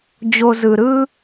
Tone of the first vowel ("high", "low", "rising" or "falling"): high